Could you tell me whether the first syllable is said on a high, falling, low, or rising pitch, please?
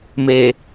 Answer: low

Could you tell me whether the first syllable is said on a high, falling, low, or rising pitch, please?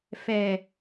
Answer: low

